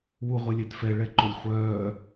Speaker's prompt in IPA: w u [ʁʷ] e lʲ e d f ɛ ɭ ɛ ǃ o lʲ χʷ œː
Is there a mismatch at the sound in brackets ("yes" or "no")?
no